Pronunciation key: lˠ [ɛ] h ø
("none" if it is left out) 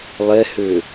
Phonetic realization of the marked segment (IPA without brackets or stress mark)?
ɛ